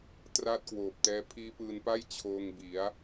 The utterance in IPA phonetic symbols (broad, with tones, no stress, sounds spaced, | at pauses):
t r aː˦˥ t̚ k w oː˨˩ p̚ t ɛː˦˥ pʰ iː˦˥ p ɯː˧ n p a˥˩ j t͡ɕʰ oː˧ ŋ b i˩˦ a̯